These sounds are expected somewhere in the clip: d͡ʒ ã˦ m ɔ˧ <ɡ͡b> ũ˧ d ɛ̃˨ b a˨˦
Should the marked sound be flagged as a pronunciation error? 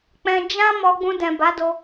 no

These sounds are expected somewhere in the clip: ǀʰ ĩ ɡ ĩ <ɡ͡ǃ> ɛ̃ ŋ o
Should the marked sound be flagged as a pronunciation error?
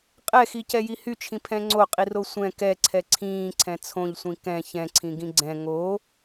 yes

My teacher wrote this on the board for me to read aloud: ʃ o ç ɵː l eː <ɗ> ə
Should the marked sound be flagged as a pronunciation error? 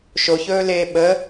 yes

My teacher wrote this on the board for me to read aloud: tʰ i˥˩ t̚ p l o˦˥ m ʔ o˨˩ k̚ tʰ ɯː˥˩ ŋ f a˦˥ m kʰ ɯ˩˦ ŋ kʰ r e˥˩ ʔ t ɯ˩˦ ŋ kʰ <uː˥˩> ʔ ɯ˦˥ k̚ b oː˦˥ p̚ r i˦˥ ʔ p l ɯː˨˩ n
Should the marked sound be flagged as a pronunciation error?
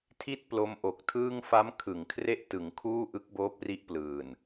no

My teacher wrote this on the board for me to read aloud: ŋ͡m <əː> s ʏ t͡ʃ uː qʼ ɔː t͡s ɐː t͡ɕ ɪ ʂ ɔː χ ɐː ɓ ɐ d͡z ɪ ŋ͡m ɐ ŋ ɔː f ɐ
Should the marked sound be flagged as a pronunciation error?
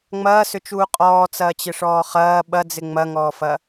yes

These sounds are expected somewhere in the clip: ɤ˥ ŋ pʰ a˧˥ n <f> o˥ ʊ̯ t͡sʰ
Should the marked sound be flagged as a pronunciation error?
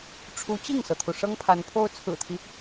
yes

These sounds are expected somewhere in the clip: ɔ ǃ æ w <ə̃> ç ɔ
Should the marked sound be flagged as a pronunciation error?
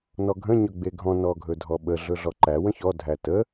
no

